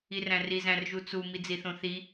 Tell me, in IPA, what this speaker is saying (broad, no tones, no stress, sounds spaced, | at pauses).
i r æ̃ r i z æ̃ r ʒ u t͡s u m i d͡z i θ õ θ i